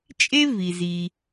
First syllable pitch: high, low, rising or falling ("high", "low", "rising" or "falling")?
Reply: high